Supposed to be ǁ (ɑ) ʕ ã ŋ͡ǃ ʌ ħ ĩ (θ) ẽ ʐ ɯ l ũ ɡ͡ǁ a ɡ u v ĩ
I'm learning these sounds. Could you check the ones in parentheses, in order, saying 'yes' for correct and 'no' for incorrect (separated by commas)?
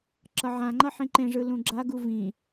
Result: no, no